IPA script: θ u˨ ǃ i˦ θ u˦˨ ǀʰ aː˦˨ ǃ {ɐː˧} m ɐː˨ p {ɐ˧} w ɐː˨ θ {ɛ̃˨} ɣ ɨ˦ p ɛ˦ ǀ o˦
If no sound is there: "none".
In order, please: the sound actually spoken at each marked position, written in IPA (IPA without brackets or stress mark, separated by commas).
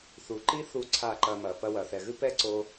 ɐː˧, ɐ˧, ɛ˨